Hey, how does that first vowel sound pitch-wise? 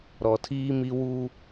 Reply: low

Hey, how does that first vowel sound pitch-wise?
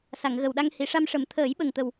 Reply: low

